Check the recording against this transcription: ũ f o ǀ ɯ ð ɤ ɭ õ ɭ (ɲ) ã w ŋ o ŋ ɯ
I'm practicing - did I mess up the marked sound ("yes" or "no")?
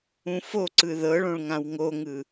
yes